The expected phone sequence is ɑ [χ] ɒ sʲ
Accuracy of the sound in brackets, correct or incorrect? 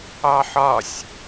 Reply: incorrect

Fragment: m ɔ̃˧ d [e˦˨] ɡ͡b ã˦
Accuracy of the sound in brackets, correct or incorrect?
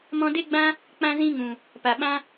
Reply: incorrect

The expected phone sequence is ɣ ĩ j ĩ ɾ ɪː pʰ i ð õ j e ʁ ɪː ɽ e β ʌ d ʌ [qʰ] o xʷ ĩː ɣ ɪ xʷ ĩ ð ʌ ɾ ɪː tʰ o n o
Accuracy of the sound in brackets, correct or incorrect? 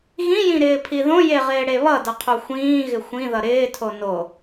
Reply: correct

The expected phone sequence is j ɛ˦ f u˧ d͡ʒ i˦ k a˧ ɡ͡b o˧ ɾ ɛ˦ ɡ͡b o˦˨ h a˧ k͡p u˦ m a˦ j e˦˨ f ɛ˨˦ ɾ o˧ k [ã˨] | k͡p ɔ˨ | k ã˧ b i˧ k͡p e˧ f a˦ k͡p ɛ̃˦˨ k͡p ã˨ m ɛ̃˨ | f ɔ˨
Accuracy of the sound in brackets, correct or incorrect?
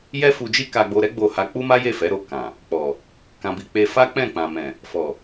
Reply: correct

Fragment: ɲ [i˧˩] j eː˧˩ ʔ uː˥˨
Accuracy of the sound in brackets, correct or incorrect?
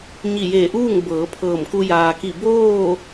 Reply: correct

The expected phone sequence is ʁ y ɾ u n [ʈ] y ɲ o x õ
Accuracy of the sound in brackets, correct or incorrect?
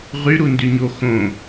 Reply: incorrect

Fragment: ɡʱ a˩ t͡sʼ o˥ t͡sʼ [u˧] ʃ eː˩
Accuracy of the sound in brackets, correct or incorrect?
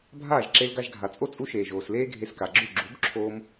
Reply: correct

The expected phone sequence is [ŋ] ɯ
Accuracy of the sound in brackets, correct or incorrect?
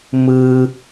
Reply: incorrect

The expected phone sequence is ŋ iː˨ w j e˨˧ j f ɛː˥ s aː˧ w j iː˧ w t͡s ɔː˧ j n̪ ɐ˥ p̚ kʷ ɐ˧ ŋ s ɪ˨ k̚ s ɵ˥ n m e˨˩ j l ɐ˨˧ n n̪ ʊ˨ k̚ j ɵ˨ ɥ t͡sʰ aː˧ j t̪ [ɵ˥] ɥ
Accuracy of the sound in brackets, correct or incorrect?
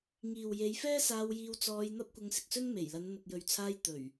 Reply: incorrect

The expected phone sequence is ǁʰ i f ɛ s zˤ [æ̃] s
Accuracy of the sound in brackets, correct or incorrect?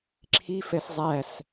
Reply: incorrect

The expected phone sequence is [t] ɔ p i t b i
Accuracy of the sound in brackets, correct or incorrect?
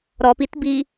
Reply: incorrect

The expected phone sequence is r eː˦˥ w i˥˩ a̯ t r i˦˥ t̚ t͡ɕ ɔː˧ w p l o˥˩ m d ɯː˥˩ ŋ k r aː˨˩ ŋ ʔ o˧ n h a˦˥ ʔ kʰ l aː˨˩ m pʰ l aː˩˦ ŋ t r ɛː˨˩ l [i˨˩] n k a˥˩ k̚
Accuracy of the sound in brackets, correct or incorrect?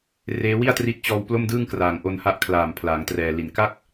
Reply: correct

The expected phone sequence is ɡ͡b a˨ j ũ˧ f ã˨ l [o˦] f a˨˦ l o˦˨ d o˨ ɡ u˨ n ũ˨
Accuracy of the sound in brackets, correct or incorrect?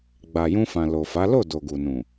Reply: incorrect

